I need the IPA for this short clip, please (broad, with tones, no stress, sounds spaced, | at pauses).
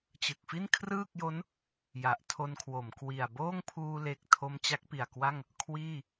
t͡ɕ ɯ˨˩ k̚ f i˥˩ n kʰ r ɯː˥˩ k̚ j o˦˥ n | j a˨˩ ʔ tʰ o˧ n kʰ w o˩˦ m k w i˨˩ a̯ b oː˥˩ ŋ pʰ uː˧ l e˨˩ k̚ tʰ o˧ m t͡ɕ a˦˥ k̚ p i˨˩ a̯ k w a˥˩ ŋ | kʰ w iː˥˩